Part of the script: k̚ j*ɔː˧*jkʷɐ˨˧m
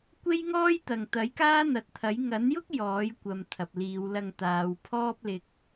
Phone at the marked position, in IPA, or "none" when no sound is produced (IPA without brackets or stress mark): ɔː˨˥